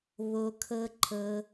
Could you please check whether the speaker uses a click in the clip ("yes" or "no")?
yes